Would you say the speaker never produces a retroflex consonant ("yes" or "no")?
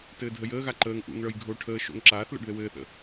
no